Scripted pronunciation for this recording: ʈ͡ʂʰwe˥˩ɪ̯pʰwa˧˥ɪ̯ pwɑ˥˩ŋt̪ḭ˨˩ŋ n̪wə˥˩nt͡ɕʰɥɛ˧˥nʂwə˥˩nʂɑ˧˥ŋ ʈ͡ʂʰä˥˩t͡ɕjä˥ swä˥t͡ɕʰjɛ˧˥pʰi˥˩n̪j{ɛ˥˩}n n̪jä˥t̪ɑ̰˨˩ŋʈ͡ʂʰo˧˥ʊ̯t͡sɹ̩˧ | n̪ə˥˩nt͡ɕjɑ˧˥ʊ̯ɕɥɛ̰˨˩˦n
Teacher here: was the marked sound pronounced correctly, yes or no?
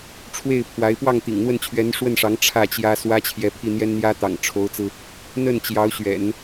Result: no